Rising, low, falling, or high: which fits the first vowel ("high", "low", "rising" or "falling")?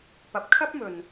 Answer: rising